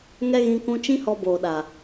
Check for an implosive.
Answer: present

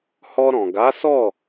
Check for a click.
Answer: absent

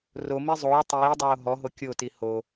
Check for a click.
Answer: absent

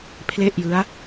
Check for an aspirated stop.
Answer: present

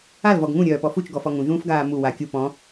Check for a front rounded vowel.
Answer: present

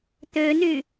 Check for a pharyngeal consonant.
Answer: absent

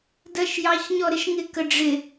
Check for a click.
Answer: absent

